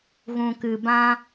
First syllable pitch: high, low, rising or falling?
low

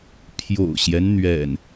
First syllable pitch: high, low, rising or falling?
low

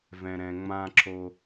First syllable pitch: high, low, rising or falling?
low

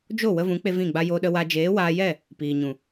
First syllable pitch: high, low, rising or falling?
falling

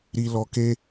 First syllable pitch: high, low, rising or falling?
low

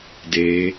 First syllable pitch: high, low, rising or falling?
rising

